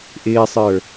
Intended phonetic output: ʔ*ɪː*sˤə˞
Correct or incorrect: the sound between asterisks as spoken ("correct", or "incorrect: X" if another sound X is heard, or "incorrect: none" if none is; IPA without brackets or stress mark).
correct